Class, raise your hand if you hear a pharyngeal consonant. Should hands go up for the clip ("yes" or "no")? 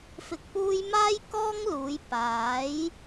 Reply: no